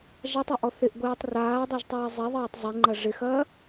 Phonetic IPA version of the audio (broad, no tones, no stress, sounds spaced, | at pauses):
ʒ a tˤ ɐ ʔ ɔ θ ɪ ʔ ɡʷ eː tˤ r aː dˤ e ʒ tˤ ɐː zˤ ɛ ðˤ ɐː tˤ zˤ e ŋ͡ǃ ɐ ʐ ɪ x ɐː